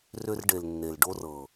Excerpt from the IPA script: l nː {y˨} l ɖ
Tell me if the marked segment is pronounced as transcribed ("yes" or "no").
no